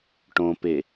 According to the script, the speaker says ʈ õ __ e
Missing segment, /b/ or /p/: p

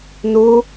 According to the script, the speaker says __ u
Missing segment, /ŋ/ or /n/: n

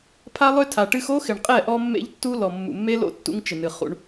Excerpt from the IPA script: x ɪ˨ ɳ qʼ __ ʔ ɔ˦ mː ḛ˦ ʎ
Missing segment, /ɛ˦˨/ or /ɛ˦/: ɛ˦˨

